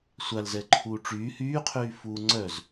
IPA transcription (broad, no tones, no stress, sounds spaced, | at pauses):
sʷ a l z ɛ ǃʰ uː ʈ͡ʂ yː h yː qʰ yː f uː ŋ͡ǀ œ z